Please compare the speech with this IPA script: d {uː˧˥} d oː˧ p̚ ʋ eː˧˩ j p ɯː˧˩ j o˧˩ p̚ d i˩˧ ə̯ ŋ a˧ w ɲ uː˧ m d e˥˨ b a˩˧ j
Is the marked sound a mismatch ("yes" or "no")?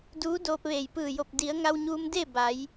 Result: no